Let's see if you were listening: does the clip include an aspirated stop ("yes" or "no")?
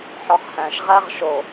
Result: no